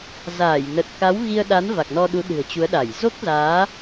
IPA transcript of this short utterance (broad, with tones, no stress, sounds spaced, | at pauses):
z aː˧˩ j n ə˨˩ t̚ k a˨˦ w ɣ i˧ ə̯ ɗ a˨˦ n v a˨˩ k̚ n ɔ˧ ɗ u˨˦ ɗ ɨ̤˨˩ ə̯ t͡ɕ u˨˦ ə̯ ɗ a˧˩ j z o˦˥ k̚ z aː˨˦